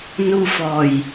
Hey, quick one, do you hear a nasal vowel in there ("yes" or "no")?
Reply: no